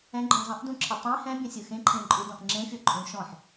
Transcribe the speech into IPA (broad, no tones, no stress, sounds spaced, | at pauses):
ɛ̃ ɡ͡ǃ ɔ̃ zˤ ɛ̃ ʔ d ũ ǁʰ ə tˤ ẽ h ɛ̃ bʲ ə̃ sʲ ɯ x ẽ ǃʰ ẽ ǃʼ u d ɔ̃ ʔ ŋ͡ǁ ẽ fʲ ɔ ǃʼ ũ ʃ ɔ̃ ħ